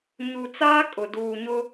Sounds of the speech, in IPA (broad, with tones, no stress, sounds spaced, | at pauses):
ɲ u˨ t͡s aː˦ kʼ ʊ˨ d uː˨ ɲ ʊ˦